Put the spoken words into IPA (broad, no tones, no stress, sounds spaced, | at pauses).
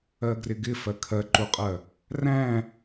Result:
ɜ ɡ r ɪ ɡ ɪ f ɜ kʰ ɜ ǃ u qʼ ɜ | r æ̃